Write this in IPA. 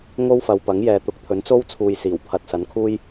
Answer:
ŋ o˥ w f ɐ˨ w p ɐ˨˥ ŋ j ɛː˨ t̪ ʊ˨˥ k̚ t̪ʰ ɵ˨˥ n t͡s o˥ w t͡sʰ uː˧ j s iː˨˩ w pʰ ɐ˨ t̚ s ɐ˨˥ n kʰ uː˥ j

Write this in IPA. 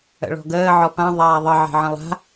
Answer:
ə̰ ɭ ɔ̤ ɡ əː ʕ ɔ p ã ðˤ aː ðˤ ə ʕ e̤ ʕ ə̃ lˠ a̤

